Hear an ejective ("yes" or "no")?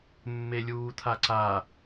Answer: no